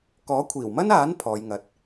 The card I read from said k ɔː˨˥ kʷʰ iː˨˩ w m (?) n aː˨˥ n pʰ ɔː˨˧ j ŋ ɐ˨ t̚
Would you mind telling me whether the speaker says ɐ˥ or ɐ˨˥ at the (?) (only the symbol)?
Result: ɐ˥